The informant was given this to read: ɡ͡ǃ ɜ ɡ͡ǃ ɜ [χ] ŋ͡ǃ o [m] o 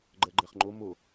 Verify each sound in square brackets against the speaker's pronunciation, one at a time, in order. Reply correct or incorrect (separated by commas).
correct, correct